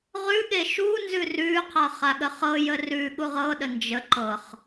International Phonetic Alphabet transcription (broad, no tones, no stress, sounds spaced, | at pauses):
ʁ ʉ ɠ e ʃ u n z ʉ r ʉ qʰ ɤ χ a ɠ ə χ ɤ j ə r ʉ ɠ u ʁ ɤ ɗ ə n d͡ʒ ə ǃ ɤ χ